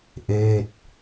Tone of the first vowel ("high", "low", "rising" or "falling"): falling